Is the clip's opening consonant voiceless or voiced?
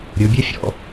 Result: voiced